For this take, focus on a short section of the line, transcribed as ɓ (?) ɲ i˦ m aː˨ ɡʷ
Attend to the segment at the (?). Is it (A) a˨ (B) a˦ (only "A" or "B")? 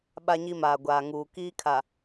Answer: B